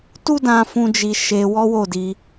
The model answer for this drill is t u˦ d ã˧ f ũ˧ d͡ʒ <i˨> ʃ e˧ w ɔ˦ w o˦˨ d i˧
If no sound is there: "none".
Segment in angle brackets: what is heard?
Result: i˧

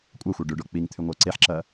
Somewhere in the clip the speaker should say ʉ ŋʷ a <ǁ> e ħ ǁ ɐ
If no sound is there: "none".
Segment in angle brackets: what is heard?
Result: ǀ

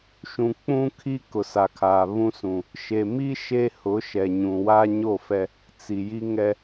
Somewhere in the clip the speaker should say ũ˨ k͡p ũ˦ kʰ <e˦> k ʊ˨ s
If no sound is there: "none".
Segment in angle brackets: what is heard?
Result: i˦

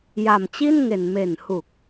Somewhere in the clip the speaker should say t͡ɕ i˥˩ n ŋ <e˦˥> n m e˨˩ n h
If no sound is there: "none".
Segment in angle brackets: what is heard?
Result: e˨˩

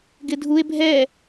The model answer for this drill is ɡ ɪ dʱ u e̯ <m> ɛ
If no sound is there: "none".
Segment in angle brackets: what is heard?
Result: bʱ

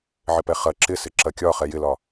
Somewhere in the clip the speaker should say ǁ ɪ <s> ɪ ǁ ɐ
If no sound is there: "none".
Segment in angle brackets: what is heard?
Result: s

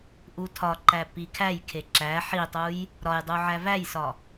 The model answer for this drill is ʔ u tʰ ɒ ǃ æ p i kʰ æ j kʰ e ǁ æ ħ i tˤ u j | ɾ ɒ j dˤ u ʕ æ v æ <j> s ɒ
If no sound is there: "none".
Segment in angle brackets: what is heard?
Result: j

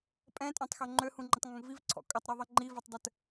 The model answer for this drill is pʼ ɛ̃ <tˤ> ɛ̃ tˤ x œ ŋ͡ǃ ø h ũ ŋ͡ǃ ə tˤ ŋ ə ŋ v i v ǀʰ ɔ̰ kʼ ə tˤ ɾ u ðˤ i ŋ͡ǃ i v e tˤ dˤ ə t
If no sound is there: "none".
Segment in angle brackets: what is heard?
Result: tʼ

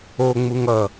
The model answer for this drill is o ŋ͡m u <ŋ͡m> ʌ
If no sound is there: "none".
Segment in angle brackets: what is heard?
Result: ŋ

